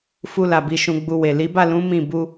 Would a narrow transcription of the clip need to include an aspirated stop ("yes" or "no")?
no